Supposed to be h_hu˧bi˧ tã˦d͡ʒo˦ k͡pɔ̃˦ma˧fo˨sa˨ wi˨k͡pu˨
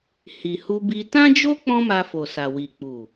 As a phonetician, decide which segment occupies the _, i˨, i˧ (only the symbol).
i˨